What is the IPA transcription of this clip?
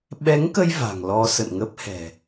ɓɛ˨˦ŋkə˧j va̤˨˩ŋlɔ˧ sə̰˧˨nŋə˦˥p̚hɛ̤˨˩

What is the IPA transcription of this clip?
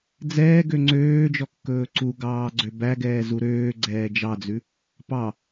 d͡zɛːɡø ŋ͡ǀøːd͡ʒɔkːɵː ǀuɡɑːɡ͡ǀø bæɡɛːzu ɾøːɡ͡ǀɛː d͡ʒɑd͡zʉ | pɑ

